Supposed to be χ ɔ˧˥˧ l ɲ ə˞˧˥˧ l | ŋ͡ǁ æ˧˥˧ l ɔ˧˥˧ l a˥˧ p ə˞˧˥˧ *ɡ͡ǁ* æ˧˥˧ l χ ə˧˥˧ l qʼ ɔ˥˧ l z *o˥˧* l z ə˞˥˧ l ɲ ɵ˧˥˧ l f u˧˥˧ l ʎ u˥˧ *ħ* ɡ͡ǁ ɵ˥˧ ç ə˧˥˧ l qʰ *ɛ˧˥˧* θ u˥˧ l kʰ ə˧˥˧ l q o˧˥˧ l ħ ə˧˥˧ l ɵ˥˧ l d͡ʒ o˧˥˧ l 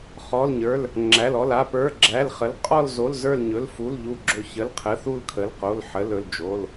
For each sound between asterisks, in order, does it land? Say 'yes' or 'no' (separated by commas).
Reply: yes, no, no, no